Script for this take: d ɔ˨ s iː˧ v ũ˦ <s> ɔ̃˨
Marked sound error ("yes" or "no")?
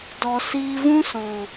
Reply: no